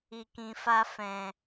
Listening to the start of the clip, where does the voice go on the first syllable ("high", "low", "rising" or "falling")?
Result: low